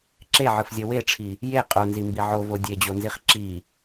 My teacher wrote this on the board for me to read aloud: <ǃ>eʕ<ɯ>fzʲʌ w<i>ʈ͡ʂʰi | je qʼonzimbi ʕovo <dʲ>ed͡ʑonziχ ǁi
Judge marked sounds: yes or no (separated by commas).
no, yes, no, yes